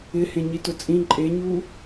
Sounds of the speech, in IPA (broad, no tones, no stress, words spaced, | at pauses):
ɪhẽ ɲitʊt͡sʼĩ ǃʼeɲu